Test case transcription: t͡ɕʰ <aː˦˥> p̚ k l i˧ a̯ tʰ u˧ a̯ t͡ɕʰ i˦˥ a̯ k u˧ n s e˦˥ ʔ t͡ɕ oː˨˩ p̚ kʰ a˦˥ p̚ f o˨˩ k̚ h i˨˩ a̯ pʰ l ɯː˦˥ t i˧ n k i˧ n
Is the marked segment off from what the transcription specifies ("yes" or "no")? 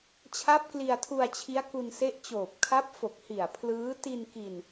yes